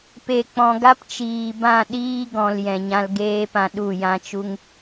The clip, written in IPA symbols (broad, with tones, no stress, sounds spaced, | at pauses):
p e˨ k͡p ɔ̃˨ ɡ a˦ p t͡ʃ iː˨ b ã˦˨ ɗ iː˦ ɡ ɔ̃˨ l j ɛ̃˨ ɲ ã˧ l ɡ eː˦ p ã˧ ɗ u˦˨ j ã˦ t͡ʃ u˦ ŋ